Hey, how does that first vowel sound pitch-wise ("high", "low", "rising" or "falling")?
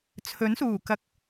rising